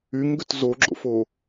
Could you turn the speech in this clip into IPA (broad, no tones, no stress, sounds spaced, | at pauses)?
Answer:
y ŋ ɡ ʏ t z o ɡ͡ǁ o̰ f o